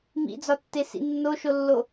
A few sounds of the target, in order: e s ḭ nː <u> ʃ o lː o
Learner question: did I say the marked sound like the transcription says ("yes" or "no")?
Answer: no